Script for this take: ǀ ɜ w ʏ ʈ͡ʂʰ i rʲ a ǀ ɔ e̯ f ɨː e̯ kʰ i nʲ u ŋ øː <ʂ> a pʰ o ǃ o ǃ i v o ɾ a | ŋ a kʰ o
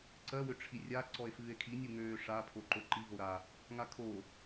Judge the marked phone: correct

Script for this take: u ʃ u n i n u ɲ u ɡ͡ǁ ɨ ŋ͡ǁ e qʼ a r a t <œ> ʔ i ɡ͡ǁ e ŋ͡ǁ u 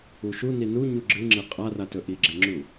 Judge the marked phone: incorrect: ɵ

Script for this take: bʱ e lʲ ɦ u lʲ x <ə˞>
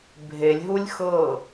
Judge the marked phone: incorrect: ɤ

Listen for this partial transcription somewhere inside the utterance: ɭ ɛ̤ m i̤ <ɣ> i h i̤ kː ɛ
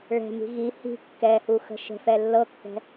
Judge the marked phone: correct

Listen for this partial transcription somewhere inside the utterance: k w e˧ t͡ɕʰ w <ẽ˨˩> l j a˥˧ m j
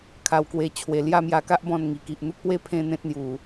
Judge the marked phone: incorrect: e˨˩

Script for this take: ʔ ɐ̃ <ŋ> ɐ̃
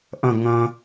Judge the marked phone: correct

